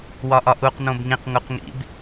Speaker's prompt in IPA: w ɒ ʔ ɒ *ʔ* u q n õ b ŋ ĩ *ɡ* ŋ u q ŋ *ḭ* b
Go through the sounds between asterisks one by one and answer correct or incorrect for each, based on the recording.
correct, incorrect, correct

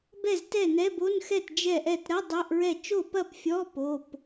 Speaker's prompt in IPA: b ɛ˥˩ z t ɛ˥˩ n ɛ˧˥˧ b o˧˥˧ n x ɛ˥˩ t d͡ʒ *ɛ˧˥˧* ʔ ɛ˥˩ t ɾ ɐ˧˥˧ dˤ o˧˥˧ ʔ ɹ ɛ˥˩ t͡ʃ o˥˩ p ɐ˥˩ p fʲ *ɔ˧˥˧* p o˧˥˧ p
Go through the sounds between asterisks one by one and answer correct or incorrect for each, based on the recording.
incorrect, correct

